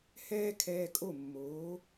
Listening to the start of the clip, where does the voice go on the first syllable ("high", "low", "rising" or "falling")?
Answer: high